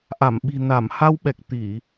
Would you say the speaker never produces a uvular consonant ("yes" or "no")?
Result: yes